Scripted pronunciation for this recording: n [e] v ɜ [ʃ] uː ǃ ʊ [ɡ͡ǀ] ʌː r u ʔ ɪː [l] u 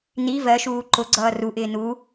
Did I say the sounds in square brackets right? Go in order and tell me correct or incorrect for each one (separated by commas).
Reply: incorrect, correct, correct, incorrect